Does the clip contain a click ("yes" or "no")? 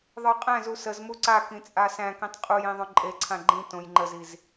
yes